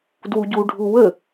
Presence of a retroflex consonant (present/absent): present